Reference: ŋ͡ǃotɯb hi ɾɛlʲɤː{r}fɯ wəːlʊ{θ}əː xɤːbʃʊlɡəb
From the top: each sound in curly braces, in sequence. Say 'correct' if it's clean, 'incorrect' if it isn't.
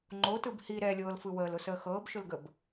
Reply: incorrect: l, incorrect: s

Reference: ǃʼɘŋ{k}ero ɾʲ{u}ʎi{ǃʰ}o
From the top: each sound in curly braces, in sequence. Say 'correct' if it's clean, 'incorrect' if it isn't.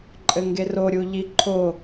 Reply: incorrect: ɡ, correct, correct

